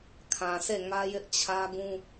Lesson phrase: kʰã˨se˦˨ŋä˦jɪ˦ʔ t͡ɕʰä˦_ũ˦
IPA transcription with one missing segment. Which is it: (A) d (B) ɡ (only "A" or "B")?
B